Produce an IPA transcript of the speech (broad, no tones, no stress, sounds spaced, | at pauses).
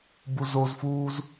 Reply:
b u z o z f uː z